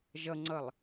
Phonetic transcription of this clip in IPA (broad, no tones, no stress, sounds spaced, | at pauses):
ʒ ʌ ŋ͡ǀ ʌ lˠ